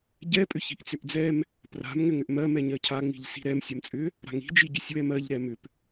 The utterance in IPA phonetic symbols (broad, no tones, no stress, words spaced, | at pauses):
ɟɛ pʼʏçi̤ʔt͡sʏʔd͡zɛm | pra̤m ŋʏŋʏʔmɜ mɛɲɜcʰa ŋ͡mi̤ʎsi̤ɾɛm sʲɜmt͡sʼʏ | ɾa̤ŋi̤ d͡ʒiɟʏsʲwɛmɜʎ ɾɛmʏp